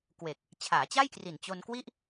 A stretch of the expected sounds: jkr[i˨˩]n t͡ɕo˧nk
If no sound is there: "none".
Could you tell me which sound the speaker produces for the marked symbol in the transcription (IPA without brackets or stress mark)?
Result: i˨˩